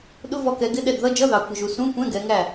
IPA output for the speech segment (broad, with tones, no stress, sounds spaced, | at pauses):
ɗ ʊ˧˥˧ v ɔ˦˨ k ɛ˨˦ ɡ ɪ˧˥˧ ɗ ɛ˦˨ d ð ʌ˧˥˧ d͡ʒ ʌ˧˥˧ ð ɑ˨˦ kʷ ɪ˨ ʒ u˨ s ũ˧˥˧ kʷ ɛ̃˧˥˧ ɡ ɛ˨˦ ŋ æ˦˨